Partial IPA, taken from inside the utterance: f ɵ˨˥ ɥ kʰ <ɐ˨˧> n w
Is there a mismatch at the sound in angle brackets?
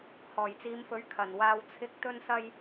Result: yes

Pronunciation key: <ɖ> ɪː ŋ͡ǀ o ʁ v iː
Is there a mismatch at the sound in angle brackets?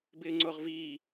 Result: yes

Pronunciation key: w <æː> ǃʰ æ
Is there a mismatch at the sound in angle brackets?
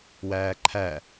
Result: no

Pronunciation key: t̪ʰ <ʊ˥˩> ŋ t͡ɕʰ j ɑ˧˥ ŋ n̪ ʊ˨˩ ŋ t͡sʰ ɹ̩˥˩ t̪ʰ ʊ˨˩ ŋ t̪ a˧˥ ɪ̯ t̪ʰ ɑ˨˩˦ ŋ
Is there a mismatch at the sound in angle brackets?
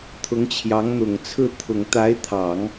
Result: yes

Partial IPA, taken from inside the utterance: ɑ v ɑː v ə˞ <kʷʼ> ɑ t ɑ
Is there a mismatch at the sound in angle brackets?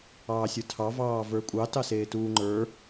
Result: no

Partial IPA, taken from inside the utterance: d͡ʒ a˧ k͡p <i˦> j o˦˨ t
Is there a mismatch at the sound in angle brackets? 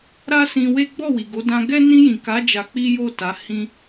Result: no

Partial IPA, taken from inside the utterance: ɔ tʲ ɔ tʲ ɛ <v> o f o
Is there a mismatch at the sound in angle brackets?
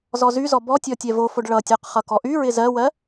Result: no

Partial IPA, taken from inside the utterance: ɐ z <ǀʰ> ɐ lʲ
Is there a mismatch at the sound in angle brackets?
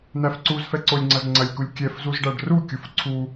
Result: yes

